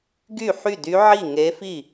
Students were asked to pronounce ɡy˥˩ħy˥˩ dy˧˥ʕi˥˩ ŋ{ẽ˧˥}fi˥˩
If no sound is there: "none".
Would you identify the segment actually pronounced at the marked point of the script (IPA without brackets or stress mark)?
e˧˥